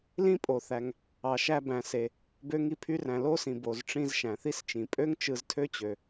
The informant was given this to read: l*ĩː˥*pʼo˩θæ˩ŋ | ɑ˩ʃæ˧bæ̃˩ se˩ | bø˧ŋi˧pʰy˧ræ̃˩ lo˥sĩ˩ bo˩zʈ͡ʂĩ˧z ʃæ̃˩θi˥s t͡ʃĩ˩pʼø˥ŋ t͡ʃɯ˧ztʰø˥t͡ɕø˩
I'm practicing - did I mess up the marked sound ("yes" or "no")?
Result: yes